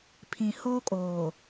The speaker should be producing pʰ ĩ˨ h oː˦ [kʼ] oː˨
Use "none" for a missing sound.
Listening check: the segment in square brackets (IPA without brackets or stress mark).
kʼ